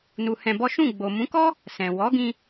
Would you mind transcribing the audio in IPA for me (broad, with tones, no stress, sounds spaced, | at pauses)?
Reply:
n u˧ h ɛ̃˧ b ɔ˦ ʃ ũ˦˨ ɡ͡b o˨ m ũ˨˦ k ɔ˦ | s ɛ̃˨ w ɔ˨˦ ɡ ĩ˧